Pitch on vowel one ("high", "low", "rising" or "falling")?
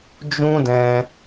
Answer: high